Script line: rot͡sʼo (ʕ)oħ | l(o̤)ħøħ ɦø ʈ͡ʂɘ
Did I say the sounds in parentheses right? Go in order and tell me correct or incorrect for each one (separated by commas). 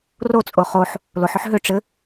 incorrect, incorrect